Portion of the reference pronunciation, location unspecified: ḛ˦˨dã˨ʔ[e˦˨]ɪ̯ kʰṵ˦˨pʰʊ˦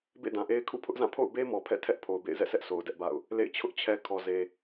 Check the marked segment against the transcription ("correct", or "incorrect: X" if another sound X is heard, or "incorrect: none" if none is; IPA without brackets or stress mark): incorrect: e˦